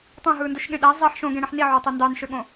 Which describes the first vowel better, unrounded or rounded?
rounded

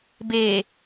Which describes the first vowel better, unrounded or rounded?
unrounded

